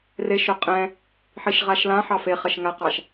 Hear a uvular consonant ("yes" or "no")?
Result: yes